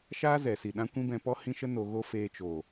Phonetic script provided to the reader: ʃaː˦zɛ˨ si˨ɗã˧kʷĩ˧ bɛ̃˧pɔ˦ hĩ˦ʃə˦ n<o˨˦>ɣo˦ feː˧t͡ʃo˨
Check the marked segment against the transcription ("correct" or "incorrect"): incorrect